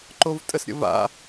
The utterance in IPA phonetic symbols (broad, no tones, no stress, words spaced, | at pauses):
ǃovtʼəsɾʲə̰va̰